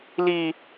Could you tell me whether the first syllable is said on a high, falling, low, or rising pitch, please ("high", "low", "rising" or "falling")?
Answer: high